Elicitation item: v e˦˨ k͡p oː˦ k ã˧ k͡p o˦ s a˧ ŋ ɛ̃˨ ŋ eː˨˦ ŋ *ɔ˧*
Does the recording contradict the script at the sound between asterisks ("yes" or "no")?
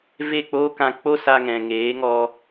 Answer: no